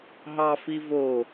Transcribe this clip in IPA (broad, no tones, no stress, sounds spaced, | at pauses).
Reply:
ɦ ɑ f i v o